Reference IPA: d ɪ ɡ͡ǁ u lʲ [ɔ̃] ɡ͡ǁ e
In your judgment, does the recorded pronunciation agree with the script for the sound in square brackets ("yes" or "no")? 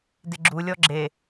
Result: no